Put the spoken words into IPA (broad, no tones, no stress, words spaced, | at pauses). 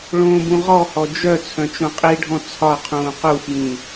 ɭõːbũʁɔhɔ d͡ʒœ t͡sʰœ̃t͡ʃõqʼiɖʱɔ̃ t͡sʰɒqʰũː qufjĩ